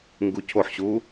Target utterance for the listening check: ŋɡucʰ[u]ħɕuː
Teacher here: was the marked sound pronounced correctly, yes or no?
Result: no